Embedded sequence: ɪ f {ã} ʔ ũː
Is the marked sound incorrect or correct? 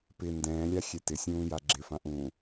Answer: correct